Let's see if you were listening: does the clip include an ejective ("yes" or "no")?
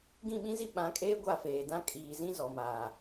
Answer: yes